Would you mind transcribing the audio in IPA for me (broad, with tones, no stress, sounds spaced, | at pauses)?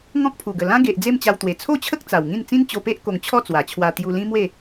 ŋ ɔ̃˦ k̚ pʰ u˨˩ ɡ ə˨˩ l ã˦ ɡ e˨ ʔ d͡z e˥˧ m t͡ɕ a˧ w t̪ w e˨˩ t͡sʰ o˥˧ t͡ɕʰ ə˦ k̚ t͡s a˨˩ w ŋ ĩ˥˧ n t͡s ĩ˦ n t͡ɕ o˧ p e˦ ʔ k o˧ ŋ t͡ɕʰ ɔ˥˧ t͡s w a˨˩ t͡ɕʰ w a˧ t̪ j u˧ l ĩ˦ m w e˥˧